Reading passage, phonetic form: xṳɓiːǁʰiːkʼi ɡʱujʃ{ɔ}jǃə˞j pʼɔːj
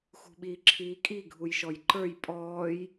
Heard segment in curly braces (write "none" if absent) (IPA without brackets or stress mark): ɔ